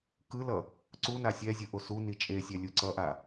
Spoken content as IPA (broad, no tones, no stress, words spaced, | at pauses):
kɯlʌ | ǀu nasʲɛzʲɯ ʔosuni t͡ʃʼesʲɛ lʲuǀʌʔa